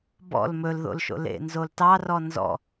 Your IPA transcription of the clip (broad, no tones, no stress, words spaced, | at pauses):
bɔ̰l mɵlðo̰lʃo̰ lḛnzoltɑ rɔnzɔ̰